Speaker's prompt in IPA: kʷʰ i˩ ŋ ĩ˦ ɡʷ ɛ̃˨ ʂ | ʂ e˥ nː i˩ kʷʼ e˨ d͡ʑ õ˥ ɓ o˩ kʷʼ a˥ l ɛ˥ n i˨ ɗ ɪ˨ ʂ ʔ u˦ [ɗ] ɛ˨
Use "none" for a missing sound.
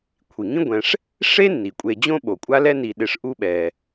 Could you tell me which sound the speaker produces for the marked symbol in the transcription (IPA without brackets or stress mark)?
ɓ